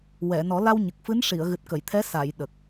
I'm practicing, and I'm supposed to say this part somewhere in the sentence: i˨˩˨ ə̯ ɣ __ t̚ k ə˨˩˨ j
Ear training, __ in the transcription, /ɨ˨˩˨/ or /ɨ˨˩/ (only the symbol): ɨ˨˩